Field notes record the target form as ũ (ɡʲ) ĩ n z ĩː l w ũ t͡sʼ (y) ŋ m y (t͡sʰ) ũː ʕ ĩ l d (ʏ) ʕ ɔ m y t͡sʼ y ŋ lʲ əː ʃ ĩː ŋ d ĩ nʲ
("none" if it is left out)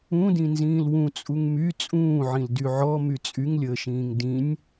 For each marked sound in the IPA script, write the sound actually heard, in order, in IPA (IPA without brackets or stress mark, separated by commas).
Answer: d, u, t͡sʼ, y